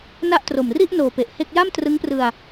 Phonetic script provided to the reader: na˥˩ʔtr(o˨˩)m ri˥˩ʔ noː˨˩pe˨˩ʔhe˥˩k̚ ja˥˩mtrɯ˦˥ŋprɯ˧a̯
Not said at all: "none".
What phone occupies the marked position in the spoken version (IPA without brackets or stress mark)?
o˨˩